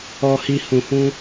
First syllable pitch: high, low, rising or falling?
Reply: low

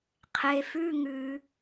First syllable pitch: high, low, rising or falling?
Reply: low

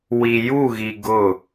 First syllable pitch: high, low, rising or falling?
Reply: low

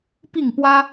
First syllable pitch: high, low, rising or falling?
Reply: falling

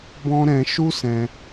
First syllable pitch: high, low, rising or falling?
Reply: high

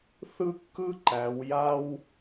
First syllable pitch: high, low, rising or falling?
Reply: high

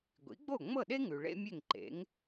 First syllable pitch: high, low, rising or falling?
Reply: rising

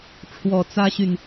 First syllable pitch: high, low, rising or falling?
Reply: low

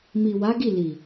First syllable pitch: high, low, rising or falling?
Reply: low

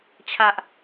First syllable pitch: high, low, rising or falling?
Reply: high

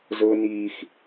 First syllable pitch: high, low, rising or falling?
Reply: high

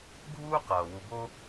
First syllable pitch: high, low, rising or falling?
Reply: high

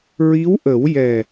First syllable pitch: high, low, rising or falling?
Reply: rising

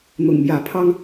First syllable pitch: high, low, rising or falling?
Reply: low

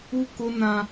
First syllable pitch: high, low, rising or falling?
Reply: high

